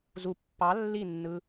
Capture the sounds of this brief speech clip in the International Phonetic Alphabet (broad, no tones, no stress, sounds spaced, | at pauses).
z u pː ɑ lː i nː ɯ